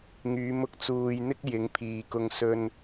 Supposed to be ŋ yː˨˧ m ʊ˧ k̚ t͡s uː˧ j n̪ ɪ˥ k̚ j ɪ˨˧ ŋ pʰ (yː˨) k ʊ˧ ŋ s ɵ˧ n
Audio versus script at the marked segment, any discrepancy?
yes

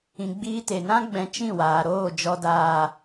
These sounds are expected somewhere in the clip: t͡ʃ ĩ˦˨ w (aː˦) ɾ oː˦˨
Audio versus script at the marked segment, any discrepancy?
yes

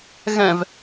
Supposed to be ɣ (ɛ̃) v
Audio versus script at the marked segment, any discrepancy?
no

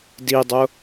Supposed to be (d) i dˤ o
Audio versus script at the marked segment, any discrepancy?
no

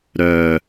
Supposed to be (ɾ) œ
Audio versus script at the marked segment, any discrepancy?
no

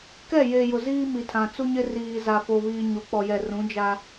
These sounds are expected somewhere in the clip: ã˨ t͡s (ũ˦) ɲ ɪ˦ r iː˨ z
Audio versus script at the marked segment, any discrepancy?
yes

